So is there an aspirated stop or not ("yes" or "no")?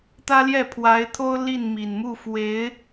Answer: yes